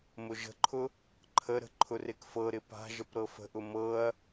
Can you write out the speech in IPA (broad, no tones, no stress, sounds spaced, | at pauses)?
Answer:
m ʊ ʒ ə̤ ǃʰ ʊ | ǃʰ ə ɾ ə̤ ǃʰ ʊ r e k f ɤ ɾ ɪ p a̤ ʒ ə p ɾ ɤ f ə̤ ʔ ʊ m ɤ ɐ̯